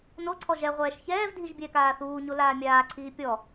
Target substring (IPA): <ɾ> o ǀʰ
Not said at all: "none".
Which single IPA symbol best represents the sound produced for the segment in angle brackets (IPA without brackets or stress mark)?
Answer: n